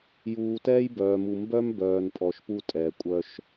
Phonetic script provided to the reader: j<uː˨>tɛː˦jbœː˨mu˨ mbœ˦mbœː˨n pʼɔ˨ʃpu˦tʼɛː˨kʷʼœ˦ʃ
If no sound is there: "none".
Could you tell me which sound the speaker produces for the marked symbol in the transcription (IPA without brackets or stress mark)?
uː˨